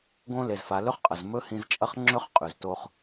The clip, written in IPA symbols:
ɡ õ˦ l e˨ z f a˨˦ l ɵ˦ χ qʼ ɐ˨ z m ɵ˦ h ĩ˦ z t͡ʃʼ ɐ˦ χ ŋ͡ǁ ɵ˦ χ qʼ ʉ˨ z t o˦ χ

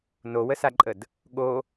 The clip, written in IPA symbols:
n o w ə s a ǃʼ ə d | ɠ o

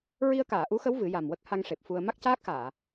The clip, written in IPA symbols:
ɹ i˧ ə̯ k aː˨˩˨ ʔ u˧˥ x ə˧˥ w v ɨ˨˩˦ j a˨˩ m w ə˦˥ k̚ h a˧ ŋ ʂ e˨˩ p̚ f u˧ ə̯ m a˦˥ k̚ c aː˦˥ k̚ x aː˨˩˨

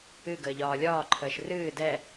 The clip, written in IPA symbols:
ɨ ɡ əː ʎ ɒː lʲ ɒː ǃʰ əː ʃ r ɨː d ɛ

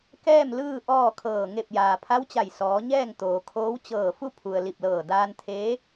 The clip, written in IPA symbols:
k ɛː˥˨ m l ɯː˥˨ ʔ ɔː˥˨ kʰ ɤː˧˩ ŋ e˧˩ p̚ j aː˩ pʰ a˧˥ w t͡ɕ a˧˩ j s ɔː˩˧ ɲ ɛː˥˨ ŋ t̪ oː˩ kʰ oː˧˥ w t͡ɕ ɤː˧˩ f u˥˨ pʰ u˩ ə̯ l i˧˩ p̚ l ɤː˧˩ d aː˧ n t̪ʰ eː˧˥

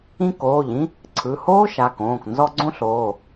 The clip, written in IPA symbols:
ĩ˥ k oː˩˧˩ ʎ ĩ˥ | ǀʰ ɯ˩˧˩ h oː˥ ʃ a˩˧˩ k õː˩˧˩ k n z ɔ˥ ɡ͡ǀ õ˥ ɬ oː˩˧˩

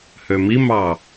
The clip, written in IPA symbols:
h ø m i m ɑ

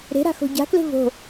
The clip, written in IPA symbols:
ɾ e̤ ɾ a̤ x o̤ ɟ a̤ k l e̤ v o̤

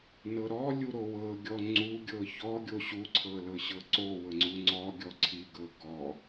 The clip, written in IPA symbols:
n ɤ ɾ ɔ lʲ u ɾ o w ɤ ɡʲ ɔ ŋ͡ǀ u ɡʲ ɤ ç ɔ ɡʲ o ɕ u ǀʰ ɤ l ɤ ɕ ɤ ǀ o w ɤ ŋ͡ǀ u ŋ͡ǀ ɔ ɡʲ ɔ ǀʰ i ɡ ɤ ɡ ɔ

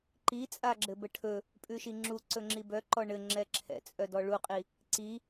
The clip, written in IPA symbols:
ǃ i t͡sʼ a ɡ͡ǁ ɘ b ə ʈʰ ɵ | pʼ ʉ ʃ i ŋ͡ǁ u ǀ ɵ ŋ͡ǁ i b œ ǃ ɔ ɳ ɘ ŋ͡ǁ ɛ ǁʰ ɛ̰ t͡sʼ œ d ɔ ɭ u qʼ i | ǀ i

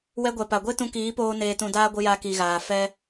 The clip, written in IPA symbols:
w ɛ˧ ɡʷ ɛ˨ p a˨ ɡʷ e˦ t ũ˧ k iː˨˦ p oː˧ n eː˧ t ũ˧ d aː˦ ɡʷ ɨ˧ j a˧ k i˨ ɣ aː˨ f ɛ˧

